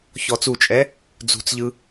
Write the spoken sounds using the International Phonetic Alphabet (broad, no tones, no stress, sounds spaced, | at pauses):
ç ɔ t͡s u t͡ʃʼ ɛ | d͡z ṳ t͡s ʎ ɯ